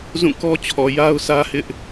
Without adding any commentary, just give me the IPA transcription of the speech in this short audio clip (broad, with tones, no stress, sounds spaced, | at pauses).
z ũ˦˨ k ɔ˦ t͡ɕʰ ɔ˨ j a˦ ʊ̯ sʰ ä˦ h ɪ˦ ʔ